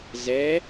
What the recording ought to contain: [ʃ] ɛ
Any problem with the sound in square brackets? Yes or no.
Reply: yes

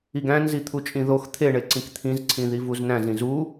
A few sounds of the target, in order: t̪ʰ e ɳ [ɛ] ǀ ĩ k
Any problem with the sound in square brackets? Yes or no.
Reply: yes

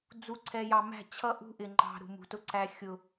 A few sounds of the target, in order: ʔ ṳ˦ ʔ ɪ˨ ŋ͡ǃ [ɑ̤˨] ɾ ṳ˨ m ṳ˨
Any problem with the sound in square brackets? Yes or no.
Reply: no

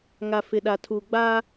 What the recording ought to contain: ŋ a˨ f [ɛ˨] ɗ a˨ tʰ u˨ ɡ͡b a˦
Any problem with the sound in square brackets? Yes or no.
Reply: yes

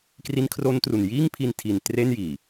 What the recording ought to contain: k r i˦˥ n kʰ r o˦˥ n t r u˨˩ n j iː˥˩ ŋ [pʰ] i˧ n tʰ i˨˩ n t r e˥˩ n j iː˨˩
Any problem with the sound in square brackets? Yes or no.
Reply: no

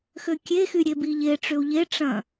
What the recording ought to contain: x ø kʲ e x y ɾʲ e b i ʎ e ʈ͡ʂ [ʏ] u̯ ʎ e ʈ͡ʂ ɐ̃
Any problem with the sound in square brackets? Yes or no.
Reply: no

